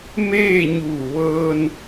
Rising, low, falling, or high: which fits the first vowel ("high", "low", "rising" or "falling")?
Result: falling